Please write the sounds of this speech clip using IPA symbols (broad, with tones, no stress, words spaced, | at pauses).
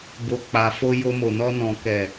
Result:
bo˨k͡pa˨fo˧ jo˧mo˨nɔ˧nɔ̃˨ kɛ˨